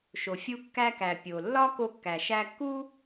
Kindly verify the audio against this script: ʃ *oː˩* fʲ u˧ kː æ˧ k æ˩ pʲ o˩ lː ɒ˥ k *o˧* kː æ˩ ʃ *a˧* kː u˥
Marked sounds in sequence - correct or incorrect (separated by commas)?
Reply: incorrect, correct, incorrect